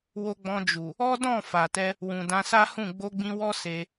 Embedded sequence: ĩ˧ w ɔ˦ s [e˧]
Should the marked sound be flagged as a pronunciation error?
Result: no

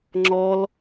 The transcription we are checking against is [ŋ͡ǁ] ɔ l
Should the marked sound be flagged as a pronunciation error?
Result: no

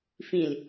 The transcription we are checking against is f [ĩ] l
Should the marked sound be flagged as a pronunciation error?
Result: no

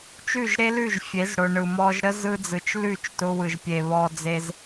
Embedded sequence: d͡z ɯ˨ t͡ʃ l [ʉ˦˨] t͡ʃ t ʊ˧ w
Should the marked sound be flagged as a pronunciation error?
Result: no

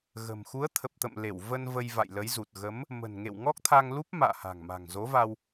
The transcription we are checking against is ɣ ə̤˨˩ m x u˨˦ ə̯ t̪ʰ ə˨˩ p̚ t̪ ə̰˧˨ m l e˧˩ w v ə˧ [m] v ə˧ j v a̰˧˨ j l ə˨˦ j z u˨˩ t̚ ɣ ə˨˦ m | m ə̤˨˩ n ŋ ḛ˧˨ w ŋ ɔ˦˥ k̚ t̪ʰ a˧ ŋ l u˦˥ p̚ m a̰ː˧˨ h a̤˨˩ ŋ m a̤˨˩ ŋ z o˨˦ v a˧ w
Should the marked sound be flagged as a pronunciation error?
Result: yes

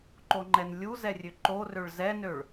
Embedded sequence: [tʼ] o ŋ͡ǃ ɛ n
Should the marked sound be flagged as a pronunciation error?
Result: yes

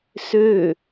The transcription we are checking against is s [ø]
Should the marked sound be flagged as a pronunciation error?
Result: no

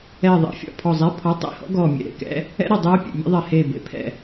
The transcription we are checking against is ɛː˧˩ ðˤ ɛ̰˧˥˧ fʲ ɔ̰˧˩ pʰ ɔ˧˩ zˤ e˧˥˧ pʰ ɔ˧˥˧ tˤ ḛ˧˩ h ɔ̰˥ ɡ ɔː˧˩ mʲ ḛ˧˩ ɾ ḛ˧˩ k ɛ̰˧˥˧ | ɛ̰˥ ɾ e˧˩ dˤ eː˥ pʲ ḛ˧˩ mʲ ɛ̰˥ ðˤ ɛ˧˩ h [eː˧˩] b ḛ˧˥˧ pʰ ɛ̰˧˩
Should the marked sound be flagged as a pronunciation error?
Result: no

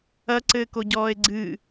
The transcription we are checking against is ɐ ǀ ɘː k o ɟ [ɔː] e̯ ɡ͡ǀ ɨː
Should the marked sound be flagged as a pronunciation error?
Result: no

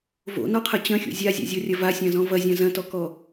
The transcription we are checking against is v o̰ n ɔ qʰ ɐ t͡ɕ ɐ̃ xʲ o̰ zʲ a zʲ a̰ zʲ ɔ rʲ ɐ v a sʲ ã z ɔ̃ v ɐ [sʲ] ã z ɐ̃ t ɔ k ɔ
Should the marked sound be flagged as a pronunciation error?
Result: yes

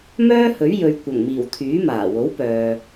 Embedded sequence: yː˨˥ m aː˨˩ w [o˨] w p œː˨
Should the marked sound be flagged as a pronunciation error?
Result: yes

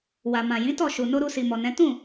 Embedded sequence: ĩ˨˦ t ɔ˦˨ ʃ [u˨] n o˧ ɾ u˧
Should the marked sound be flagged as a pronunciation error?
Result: no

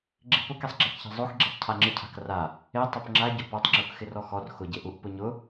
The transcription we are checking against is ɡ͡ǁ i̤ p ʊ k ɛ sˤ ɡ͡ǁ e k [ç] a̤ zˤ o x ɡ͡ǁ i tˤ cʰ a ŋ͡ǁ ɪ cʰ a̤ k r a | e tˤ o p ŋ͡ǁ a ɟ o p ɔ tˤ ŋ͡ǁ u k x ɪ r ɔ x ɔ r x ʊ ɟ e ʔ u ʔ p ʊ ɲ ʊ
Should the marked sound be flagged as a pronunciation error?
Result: no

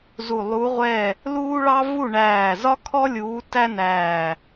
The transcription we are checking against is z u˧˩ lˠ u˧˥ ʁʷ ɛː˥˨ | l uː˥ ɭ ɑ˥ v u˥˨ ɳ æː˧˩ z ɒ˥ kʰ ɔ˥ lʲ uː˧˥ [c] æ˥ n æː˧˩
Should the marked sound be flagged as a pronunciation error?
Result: yes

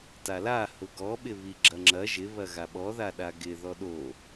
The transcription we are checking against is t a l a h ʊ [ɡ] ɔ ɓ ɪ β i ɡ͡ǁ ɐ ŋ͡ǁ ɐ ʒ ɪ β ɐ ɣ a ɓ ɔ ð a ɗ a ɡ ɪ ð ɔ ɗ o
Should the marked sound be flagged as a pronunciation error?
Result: no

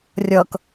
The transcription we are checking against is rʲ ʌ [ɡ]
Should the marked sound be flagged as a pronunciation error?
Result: yes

